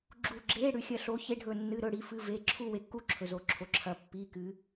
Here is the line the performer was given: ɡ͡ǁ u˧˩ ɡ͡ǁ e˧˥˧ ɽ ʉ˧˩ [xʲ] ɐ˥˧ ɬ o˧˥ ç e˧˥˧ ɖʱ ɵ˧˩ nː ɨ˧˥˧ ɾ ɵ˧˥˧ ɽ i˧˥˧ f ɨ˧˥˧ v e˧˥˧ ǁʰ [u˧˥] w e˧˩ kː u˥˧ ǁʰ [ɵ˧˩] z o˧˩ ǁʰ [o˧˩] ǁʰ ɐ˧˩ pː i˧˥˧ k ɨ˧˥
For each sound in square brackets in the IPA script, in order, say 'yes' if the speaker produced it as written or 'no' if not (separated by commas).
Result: yes, no, yes, yes